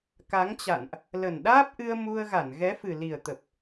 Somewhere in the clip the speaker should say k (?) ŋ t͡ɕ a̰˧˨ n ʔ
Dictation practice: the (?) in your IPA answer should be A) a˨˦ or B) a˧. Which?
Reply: A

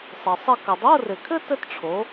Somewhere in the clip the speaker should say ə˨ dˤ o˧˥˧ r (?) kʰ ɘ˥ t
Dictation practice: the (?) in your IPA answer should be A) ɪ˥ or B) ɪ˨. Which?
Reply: B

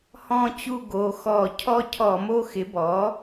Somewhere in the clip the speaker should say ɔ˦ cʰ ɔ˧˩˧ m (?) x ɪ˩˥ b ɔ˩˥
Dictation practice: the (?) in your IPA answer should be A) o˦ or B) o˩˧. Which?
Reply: A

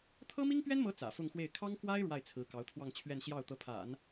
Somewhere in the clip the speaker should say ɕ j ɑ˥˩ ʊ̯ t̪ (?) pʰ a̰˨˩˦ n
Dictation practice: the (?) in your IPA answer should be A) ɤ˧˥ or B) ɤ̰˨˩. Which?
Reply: A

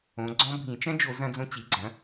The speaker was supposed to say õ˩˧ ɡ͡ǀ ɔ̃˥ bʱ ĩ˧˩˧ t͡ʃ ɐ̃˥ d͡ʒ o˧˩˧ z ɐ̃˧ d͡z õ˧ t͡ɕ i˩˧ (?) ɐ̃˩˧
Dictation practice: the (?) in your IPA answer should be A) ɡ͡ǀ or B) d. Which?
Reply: A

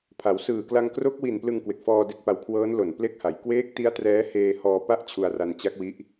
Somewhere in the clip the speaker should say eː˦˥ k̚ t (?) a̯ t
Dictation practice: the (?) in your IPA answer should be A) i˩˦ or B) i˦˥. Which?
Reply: B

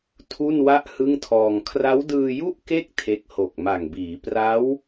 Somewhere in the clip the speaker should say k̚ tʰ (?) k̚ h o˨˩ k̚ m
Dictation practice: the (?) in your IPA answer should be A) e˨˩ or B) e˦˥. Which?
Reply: B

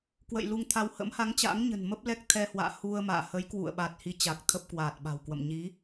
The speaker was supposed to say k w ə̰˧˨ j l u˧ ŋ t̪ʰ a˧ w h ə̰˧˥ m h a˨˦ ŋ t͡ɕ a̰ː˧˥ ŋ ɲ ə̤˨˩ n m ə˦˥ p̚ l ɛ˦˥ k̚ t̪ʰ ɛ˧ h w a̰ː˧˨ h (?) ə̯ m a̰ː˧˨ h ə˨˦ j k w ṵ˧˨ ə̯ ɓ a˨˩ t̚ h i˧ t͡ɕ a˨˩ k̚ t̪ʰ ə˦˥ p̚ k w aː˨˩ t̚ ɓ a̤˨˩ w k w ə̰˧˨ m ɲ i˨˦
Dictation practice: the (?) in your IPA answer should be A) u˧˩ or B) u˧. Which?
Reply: B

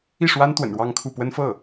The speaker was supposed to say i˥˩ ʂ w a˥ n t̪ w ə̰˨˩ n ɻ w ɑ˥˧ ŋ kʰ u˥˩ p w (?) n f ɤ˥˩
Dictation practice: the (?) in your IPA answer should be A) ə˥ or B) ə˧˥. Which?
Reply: A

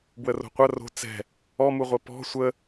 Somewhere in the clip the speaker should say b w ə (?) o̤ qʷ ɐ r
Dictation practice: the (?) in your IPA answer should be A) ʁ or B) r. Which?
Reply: B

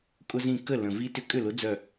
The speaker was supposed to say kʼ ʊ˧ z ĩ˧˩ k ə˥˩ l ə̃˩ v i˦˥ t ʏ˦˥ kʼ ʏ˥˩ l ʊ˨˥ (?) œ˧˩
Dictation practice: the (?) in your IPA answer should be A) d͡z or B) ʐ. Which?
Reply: A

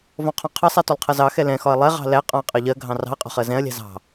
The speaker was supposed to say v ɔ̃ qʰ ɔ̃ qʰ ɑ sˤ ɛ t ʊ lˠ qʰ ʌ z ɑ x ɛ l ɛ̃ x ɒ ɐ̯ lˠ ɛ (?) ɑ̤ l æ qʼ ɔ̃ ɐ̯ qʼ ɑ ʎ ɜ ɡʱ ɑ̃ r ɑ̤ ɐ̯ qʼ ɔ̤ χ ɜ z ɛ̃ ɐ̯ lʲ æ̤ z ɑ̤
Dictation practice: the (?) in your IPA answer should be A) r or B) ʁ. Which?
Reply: B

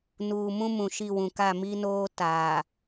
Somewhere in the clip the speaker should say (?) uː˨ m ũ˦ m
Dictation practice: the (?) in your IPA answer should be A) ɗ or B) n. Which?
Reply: B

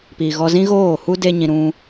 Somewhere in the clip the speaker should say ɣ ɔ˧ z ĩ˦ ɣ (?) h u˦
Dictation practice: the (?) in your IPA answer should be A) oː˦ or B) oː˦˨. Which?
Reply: B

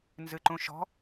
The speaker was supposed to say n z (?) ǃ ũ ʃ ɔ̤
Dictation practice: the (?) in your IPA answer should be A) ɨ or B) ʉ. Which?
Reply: A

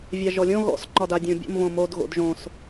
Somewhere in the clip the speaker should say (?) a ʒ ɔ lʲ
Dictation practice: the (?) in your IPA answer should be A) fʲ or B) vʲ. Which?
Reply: B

